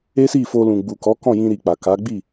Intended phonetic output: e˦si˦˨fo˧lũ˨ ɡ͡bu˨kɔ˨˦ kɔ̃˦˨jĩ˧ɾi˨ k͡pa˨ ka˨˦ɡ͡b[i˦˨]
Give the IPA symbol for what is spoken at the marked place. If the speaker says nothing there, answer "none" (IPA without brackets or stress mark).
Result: i˦˨